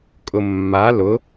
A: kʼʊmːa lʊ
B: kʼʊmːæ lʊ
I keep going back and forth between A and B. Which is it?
A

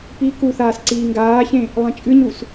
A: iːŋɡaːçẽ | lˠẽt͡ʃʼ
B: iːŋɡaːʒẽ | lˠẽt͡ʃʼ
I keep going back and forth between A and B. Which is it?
A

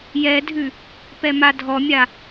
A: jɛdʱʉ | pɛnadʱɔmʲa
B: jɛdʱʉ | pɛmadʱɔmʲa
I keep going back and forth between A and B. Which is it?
B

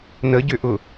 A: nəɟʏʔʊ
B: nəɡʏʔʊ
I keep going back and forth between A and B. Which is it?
A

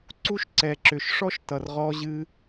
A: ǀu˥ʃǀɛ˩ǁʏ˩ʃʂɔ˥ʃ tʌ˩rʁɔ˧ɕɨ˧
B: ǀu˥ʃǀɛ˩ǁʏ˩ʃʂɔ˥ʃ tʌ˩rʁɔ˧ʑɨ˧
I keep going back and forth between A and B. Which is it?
B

